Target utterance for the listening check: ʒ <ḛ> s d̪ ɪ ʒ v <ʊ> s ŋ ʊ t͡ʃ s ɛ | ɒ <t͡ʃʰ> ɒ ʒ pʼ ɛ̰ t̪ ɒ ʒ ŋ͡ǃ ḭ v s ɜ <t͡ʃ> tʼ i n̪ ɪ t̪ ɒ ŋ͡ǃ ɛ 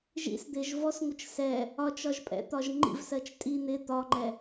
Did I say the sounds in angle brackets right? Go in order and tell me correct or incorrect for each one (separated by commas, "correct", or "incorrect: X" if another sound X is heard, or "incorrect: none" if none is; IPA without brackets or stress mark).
incorrect: ḭ, incorrect: ɔ, incorrect: t͡ʃ, correct